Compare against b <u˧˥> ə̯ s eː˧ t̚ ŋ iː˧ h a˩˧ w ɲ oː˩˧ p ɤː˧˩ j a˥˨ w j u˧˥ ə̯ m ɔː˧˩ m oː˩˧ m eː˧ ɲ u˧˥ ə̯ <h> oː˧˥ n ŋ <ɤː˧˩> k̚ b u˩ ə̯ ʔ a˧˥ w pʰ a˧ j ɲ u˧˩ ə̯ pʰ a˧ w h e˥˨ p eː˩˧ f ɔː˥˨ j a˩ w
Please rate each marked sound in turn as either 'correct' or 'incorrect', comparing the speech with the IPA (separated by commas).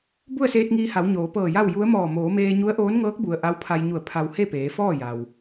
incorrect, incorrect, incorrect